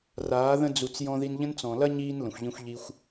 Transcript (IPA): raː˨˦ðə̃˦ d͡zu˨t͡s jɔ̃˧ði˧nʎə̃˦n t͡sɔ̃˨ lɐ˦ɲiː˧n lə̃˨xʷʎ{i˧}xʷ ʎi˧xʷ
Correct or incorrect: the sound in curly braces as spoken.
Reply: incorrect: ĩ˧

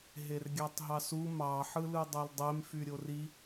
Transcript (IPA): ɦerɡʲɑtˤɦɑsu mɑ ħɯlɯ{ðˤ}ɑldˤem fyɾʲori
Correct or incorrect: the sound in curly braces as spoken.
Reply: incorrect: dˤ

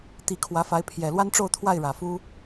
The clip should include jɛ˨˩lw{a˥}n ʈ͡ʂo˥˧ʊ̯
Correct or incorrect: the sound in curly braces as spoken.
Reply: correct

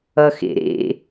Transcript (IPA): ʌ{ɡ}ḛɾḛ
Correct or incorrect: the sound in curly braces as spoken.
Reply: incorrect: x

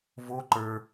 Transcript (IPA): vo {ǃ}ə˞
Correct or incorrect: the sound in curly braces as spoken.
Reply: correct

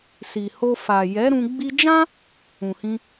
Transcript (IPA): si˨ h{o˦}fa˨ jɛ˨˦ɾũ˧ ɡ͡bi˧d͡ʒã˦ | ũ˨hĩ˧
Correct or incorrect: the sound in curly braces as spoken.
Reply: incorrect: o˧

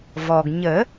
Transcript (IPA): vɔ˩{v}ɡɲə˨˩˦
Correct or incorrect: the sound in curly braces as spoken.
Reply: incorrect: none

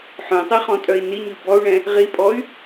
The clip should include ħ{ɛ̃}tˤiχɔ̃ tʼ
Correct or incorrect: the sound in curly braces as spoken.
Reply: incorrect: œ̃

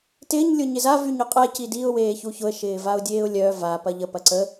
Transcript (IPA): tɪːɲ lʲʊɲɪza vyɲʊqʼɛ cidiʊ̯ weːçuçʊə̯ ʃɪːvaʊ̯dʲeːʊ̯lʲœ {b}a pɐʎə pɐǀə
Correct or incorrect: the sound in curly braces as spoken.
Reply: incorrect: v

